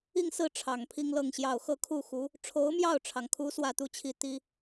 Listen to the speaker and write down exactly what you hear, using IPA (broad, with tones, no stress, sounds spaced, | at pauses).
i˥˧ ŋ s ɹ̩˥˩ ʈ͡ʂʰ ɑ˨˩ ŋ pʰ i˥ ŋ l ɤ˥˧ ŋ ɕ j ɑ˥˧ ʊ̯ x ɤ˥˧ kʰ u˥˩ x u˧˥ | ʈ͡ʂʰ o˧˥ ʊ̯ m j ɑ˥˩ ʊ̯ ʈ͡ʂʰ ɑ˩ ŋ kʰ u˧˥ s w ä˥˧ t̪ u˥˧ t͡ɕʰ i˥˩ t̪ i˥